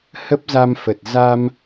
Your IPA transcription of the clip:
h ə˦˥ p̚ z a˧ m f ə˨˩ t̚ z a˧ m

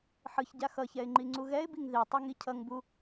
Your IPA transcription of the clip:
ħ ɯ ç ɟ a x ʌ ç ɛ ɪ̯ ŋ͡ǃ i ŋ͡ǀ u ɣ ɛ ɪ̯ b i ŋ ð i tˤ e ŋ i cʰ ʌ ŋ b u

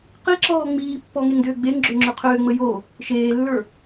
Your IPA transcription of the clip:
q i ǁ ɔː ŋ͡m iː pː ɔ ŋ e ŋ d ʏː ɡ͡b e ŋ ɡ͡ǁ ʏː ŋ͡ǁ ʏ qʰ ʏː ŋ͡m ə j o | ʃ eː lː ə˞

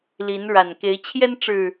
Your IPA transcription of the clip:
l i˨˦ n ɻ a˨˩ n k e˨˦ ɪ̯ t͡ɕʰ j ɛ˦ n ʈ͡ʂ ɻ̩˨˩

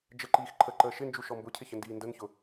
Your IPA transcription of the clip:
d͡ʒ ə ǃ iː x ǃʰ ə ǃ əː ʃ ɪ n d͡ʒ u ʃ ɔ m b ʊ cʰ ɪ ç ə n d iː n d ə n ç ʊ

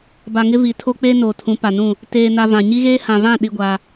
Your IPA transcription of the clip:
b a˨ ŋ ɪ˦ v i˨ tʰ o˦ k͡p eː˦ n oː˨ tʰ ũ˨˦ p a˨ n ũ˦˨ | t eː˨ n a˨ v ã˨ ɲ i˦ ɣ eː˦ h ã˨ β ã˦˨ ɗ i˦ ɡʷ a˦

